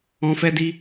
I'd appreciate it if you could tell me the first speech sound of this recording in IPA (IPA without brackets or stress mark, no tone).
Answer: ɔ̃